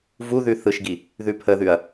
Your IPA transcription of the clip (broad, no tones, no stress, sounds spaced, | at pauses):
v u ð ʉ θ ɯ ʃ ɡ i | ð ʉ pʰ ə ð ʉ ɐ̯